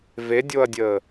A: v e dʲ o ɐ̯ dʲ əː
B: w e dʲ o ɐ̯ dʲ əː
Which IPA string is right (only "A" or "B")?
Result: A